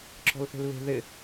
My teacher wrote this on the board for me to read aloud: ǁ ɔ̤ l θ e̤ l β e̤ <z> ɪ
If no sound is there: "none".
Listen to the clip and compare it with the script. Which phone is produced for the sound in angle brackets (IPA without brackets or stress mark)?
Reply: ð